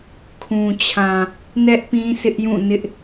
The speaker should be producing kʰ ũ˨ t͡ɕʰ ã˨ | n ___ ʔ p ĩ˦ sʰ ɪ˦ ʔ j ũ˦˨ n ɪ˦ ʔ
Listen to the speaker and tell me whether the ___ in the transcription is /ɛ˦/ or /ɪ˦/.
ɛ˦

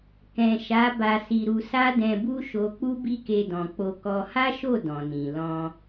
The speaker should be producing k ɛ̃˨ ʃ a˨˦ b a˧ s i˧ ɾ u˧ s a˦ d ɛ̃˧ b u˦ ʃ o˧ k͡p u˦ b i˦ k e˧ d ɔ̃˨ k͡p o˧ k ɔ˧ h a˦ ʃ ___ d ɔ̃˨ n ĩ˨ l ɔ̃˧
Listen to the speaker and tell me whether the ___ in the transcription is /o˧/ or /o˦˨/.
o˦˨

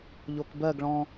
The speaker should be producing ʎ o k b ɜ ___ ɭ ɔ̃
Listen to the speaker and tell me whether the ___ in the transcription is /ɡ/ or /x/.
ɡ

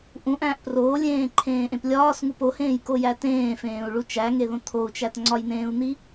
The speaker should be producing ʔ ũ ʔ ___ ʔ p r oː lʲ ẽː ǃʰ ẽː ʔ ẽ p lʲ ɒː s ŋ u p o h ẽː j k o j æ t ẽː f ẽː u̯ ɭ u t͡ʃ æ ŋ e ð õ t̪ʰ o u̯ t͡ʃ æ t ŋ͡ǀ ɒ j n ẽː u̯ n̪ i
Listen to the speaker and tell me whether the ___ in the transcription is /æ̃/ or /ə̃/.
æ̃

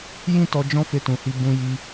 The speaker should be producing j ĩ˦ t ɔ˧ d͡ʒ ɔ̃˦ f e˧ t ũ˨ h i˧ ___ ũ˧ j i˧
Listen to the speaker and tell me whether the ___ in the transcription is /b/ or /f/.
b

